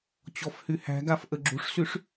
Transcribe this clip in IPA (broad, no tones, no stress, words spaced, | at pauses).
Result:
t͡ɕɔfhyhæ̤ɡaf ʔəɡ͡ǁṳʂsyʂ